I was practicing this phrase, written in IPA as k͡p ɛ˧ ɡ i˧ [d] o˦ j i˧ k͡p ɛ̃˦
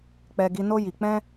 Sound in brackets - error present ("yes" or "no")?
yes